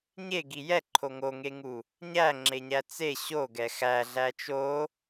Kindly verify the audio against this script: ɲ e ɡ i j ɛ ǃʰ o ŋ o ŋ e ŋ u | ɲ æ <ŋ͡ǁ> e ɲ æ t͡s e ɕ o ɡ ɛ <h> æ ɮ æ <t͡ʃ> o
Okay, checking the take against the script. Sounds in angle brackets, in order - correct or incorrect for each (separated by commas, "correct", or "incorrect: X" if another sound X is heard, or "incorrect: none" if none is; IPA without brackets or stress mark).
correct, incorrect: x, correct